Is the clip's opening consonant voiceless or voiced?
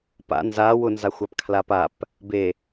voiceless